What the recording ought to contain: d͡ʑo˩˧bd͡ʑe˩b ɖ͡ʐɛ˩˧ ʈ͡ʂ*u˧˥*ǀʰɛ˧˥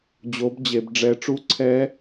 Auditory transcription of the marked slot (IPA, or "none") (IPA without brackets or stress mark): u˧˥